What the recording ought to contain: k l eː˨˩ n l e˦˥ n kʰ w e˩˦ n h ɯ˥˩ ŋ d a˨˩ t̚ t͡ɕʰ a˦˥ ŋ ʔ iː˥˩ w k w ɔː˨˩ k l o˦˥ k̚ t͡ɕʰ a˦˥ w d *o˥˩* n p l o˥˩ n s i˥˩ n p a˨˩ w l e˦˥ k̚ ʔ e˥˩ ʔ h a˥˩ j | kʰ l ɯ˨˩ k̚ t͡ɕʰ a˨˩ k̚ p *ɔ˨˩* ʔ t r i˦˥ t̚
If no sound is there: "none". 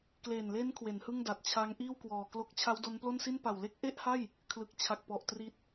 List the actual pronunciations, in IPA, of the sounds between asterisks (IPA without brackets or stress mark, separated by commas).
o˦˥, ɔ˨˩